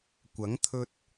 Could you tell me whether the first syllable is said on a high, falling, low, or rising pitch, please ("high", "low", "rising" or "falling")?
rising